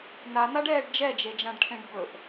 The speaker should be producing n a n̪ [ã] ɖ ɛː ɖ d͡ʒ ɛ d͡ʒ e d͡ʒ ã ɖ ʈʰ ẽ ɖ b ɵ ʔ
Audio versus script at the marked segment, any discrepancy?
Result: yes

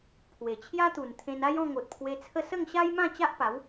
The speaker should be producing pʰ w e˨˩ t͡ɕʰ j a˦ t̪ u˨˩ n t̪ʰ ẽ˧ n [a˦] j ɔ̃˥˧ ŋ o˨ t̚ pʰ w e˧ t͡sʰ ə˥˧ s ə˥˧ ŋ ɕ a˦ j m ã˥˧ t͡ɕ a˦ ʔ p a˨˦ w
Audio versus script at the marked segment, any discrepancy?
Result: no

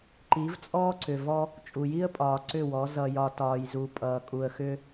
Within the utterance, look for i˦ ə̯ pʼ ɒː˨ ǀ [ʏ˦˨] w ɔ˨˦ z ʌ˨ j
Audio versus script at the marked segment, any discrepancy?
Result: no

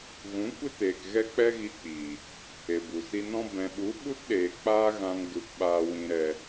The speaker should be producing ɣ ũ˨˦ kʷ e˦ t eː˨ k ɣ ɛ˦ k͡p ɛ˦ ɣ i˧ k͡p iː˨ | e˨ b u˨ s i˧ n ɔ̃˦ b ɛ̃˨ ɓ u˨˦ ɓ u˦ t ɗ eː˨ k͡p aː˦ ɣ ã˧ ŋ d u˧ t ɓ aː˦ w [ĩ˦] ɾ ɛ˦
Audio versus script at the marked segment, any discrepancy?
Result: no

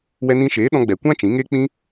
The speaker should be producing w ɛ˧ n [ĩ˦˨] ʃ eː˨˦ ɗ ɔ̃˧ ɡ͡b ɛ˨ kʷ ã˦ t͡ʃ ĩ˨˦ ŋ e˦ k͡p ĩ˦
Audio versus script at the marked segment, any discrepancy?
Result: yes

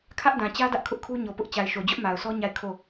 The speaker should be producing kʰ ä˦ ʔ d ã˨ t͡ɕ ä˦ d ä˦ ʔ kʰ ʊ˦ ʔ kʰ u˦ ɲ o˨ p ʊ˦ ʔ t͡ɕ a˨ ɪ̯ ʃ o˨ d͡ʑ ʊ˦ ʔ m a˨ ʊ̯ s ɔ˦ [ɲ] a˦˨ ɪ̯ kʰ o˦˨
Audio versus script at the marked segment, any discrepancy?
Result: no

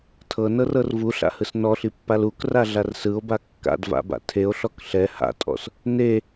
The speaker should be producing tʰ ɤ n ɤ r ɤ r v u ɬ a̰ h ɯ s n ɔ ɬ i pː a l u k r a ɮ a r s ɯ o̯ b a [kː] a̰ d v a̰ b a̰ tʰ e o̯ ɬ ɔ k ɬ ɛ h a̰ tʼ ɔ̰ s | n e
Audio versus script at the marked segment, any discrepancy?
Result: no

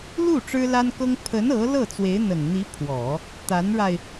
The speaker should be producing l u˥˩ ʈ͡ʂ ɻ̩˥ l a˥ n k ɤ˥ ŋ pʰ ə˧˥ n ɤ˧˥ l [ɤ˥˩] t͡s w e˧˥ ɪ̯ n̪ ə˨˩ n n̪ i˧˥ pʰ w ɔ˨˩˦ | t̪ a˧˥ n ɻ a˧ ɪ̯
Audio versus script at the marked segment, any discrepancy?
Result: no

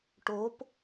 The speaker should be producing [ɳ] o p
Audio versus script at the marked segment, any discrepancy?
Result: yes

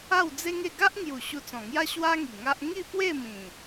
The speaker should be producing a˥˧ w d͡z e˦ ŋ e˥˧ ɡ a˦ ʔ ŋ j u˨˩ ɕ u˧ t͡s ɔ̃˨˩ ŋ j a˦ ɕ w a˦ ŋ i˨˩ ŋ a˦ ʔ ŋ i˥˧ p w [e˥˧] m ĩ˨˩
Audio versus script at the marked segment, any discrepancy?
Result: no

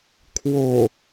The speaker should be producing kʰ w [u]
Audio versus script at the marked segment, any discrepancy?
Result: yes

